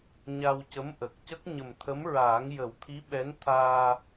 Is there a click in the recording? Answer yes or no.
no